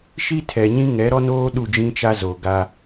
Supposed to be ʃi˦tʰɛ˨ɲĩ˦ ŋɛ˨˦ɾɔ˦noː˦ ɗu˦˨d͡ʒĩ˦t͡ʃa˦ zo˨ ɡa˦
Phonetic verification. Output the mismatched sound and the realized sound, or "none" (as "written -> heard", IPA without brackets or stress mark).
none